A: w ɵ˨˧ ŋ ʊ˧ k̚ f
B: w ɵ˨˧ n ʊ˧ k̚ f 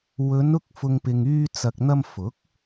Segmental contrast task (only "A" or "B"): B